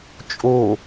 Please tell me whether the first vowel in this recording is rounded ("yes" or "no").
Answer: yes